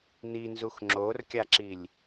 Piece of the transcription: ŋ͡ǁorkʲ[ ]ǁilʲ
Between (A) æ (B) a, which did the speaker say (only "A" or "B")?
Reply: B